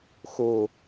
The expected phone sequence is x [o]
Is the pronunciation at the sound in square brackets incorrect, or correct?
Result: correct